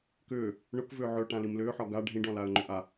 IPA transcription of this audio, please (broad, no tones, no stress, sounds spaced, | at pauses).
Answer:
k ʏː | ɳ ʊ k v ʏː ʕ ʏ ʊ̯ ʈ ã l i m l ʏː ħ ɒ ɡ a ɖʱ ĩ ɖ ɔ̃ l a ə̯ ŋ͡ǃ ʏ ʔ a